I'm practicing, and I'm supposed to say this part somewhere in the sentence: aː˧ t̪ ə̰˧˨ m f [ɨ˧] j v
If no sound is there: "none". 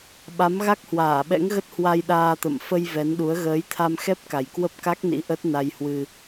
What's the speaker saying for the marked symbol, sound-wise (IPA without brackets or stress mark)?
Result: ə˧